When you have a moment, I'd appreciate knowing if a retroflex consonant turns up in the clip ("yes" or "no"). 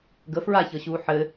no